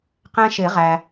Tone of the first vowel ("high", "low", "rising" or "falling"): high